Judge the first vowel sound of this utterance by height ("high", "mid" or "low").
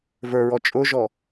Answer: mid